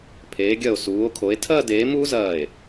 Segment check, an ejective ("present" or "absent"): absent